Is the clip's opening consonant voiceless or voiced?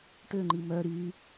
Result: voiceless